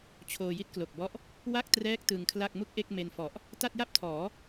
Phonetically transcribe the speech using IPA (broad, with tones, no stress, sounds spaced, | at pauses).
t͡ɕʰ oː˧ j i˥˩ t̚ k l o˨˩ k̚ b ɔ˦˥ ʔ | w a˥˩ k̚ t r ɛː˦˥ k̚ t ɯ˧ ŋ kʰ l a˥˩ k̚ m u˥˩ k̚ ʔ e˥˩ k̚ m e˧ n f ɔ˨˩ ʔ | t a˥˩ t̚ j a˥˩ p̚ tʰ ɔː˩˦